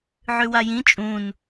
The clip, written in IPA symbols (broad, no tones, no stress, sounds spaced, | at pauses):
ʕ ʉ w a j ĩ t͡ʃʼ ũ n